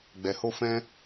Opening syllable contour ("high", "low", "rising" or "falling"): low